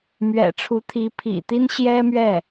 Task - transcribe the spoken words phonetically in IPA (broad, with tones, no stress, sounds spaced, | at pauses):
m ɥ ɛ̰˨˩ ʈ͡ʂʰ u˧˥ t̪ʰ i˧˥ pʰ ḭ˨˩ t̪ i˥ n ɕ j ɛ˥ m ɥ ɛ˥˩